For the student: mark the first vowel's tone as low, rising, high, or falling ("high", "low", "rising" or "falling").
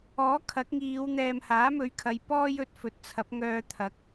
rising